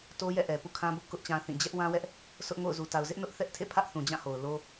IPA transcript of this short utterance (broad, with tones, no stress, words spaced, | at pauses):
to˦jɛ̰˦˨ʔɛ˨ pṵ˦˨kʰã˦bʊ˦ʔkʊ˦ʔ t͡ɕã˦θĩ˦˨ d͡ʑɛ˦ʔwã˦wɛ˦ʔ | sʰʊ˦ʔŋo̰˦˨ʊ̯ zu˨ta˨ʊ̯zɪ˦ʔnʊ˦ʔ θɛ˦ʔtʰḛ˦˨ pʰä˦ʔθũ˨d͡ʑã˦˨ ho˨ʊ̯lo˦